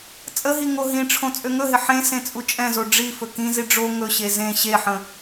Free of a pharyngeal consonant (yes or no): no